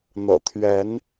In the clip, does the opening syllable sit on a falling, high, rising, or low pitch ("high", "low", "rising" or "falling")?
low